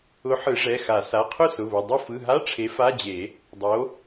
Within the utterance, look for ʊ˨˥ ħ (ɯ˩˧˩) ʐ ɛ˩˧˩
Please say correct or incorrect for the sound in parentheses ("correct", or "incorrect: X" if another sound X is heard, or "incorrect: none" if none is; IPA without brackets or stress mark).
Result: incorrect: ɯ˨˩˦